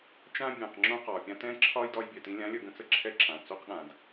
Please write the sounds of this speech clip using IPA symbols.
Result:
t͡ʃ ã˧ bʲ ɛ̃˩ q ŋ͡ǁ õ˧ q ɒː˩ pʲ ã˧ t ɛ̃ː˧ ǁʰ ɒː˧ j d ɒ˧ j bʲ ɛ˩ t ĩ˧ lʲ ã˧˥ lʲ ə˧ ɡ ə̃˧˥ t͡s ə˧ ǁʰ ɛ˧˥ ǁ ã˩ t͡s o˧ q ɠ ã˩ d

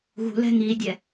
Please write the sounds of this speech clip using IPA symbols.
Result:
ɣ ṳ l ɛ̤ ŋ i dʲ ɛ

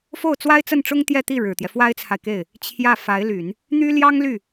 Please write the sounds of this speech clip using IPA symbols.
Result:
f o˥˩ ʊ̯ t͡s w a˥ ɪ̯ t͡s ə˥˩ n ʈ͡ʂ ʊ˥ ŋ t̪ j ɛ˥˧ t̪ i˥˩ ɻ ɻ̩˨˩ t̪ j ɛ˦ f w a˥ ɪ̯ t͡sʰ a˨ ɪ̯ k e˥˩ ɪ̯ | t͡ɕʰ j ä˥˩ f a˧˥ ɪ̯ l y˨˩˦ n | n̪ y˥ l j ɑ˥ ŋ l y˥˩

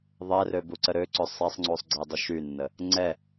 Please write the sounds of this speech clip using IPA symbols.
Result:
ðˤ ɛ r ø b u ǀ ə ɾ ø ǀ ø sˤ ɛ sˤ ŋ͡ǀ u sˤ ɡ͡ǀ e dˤ y ʃ y nː ə | ŋ͡ǀ ɛ

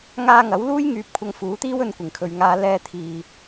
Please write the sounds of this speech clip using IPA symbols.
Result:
ŋ aː˧ ŋ ɐ˨˥ w l uː˥ j ŋ yː˧ p̚ kʷʰ ɐ˧ ŋ f uː˨˥ t̪ iː˥ w ɵ˧ n kʷ ɪ˨˩ ŋ kʰ ɵ˨ ɥ ŋ aː˧ l ɛː˧ t̪ʰ iː˨

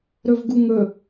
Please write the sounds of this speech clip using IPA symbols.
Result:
ɾ ɵ v ɡ u ŋ ɵ

